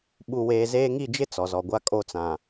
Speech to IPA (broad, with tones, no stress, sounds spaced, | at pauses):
ɓ u˨ w eː˨ z eː˦ ŋ i˦˨ d͡ʒ ɪ˦ t͡s ɔ˨ z ɔ˨ ɡʷ a˦ kʼ o˦˨ t͡s ã˨